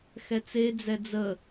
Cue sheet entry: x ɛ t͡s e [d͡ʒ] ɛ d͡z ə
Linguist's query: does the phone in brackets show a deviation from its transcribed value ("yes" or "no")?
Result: yes